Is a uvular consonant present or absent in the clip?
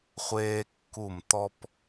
present